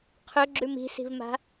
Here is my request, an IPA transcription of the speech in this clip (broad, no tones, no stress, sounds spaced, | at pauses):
qʰ ɵ ɡ͡ǁ ʉ m i̤ s i̤ v m a̤